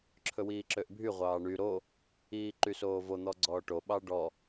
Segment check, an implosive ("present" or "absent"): present